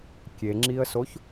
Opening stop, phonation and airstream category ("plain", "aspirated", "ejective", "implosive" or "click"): plain